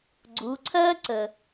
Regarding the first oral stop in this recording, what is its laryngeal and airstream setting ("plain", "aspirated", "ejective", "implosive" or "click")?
click